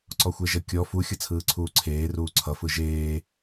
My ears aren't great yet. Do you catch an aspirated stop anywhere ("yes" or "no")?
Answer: yes